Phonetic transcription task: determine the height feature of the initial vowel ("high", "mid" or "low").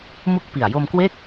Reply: high